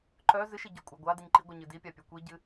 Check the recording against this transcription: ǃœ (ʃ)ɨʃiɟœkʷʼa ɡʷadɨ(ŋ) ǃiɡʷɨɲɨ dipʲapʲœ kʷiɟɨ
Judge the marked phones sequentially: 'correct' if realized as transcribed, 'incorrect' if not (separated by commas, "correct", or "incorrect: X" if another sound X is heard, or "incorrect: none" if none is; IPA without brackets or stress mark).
incorrect: z, incorrect: ɲ